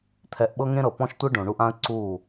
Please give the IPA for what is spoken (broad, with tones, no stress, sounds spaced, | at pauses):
t̪ʰ ɛ˨ ʔ ɓ ɤ˦ ŋ ẽ˦ ɾ ɤ˨ p ɔ̃˦ ʃ tʷ ɯ˦ ɖ õ˨ ɳ u˧ ʔ ã˦ ə̯ ǀ uː˦˨